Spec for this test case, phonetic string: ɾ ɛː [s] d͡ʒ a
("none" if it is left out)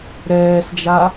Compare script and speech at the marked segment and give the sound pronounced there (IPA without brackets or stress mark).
s